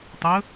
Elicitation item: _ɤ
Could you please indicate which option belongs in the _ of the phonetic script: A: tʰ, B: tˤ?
B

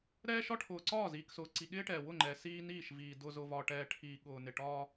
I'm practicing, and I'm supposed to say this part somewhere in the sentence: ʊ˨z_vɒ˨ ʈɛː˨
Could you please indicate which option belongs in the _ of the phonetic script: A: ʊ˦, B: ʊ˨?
B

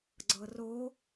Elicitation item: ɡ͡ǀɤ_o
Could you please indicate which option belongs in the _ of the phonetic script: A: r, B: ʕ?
A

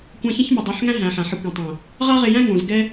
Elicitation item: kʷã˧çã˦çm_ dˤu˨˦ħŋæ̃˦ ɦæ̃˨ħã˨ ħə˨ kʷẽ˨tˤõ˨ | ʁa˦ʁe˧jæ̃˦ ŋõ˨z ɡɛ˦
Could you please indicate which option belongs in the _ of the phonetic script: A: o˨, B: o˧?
A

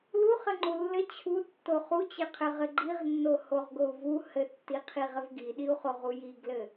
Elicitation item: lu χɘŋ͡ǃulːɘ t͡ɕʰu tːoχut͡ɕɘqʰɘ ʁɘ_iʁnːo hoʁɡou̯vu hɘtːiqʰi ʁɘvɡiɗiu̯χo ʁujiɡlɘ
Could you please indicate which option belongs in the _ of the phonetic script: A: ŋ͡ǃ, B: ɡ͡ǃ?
B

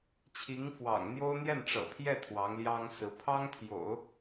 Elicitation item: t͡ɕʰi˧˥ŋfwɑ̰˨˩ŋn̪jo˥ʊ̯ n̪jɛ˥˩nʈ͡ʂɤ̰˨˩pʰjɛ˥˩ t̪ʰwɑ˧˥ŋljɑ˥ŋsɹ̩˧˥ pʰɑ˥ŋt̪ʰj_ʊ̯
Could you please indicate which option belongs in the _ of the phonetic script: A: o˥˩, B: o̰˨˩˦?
B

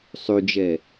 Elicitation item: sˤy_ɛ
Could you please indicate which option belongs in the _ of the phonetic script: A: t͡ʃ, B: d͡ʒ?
B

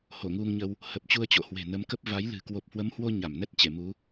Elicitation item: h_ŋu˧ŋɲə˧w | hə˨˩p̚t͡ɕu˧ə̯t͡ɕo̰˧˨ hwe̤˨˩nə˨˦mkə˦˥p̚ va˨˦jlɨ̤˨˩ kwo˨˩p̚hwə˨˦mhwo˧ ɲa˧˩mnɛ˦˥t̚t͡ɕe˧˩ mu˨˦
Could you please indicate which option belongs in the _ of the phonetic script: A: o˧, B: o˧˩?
B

